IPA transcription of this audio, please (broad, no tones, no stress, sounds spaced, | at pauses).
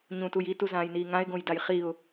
ɲ ũ t u j i t u z ãː j n iː ŋ ã ɪ̯ ɡ õ j d a j χ i ʊ̯